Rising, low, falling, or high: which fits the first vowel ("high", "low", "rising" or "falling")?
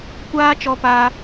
high